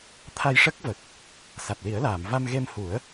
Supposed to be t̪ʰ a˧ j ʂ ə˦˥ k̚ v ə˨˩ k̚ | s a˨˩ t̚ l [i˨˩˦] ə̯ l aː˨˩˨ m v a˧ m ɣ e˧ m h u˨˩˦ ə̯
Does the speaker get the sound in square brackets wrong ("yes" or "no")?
no